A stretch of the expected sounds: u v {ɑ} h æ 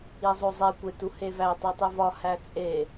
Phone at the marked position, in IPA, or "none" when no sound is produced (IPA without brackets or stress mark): ɒ